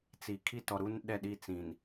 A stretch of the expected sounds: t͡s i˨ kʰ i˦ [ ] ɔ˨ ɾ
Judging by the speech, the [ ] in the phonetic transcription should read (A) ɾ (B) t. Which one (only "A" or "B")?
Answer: B